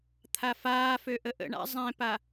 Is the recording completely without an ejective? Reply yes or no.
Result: yes